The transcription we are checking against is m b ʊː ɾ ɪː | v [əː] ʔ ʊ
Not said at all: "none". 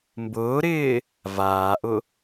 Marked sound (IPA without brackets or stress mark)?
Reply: aː